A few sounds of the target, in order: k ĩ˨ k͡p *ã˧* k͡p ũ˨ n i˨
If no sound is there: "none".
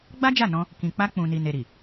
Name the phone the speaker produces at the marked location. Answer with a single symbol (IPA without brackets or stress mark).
a˧